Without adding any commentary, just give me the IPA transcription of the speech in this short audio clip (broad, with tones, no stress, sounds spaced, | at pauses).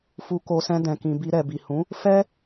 f u˧ k o˧ s ɛ̃˧ d ɛ̃˨ k ĩ˨ b i˧ ɾ ɛ˨ b i˨ h ũ˨˦ | f ɛ˦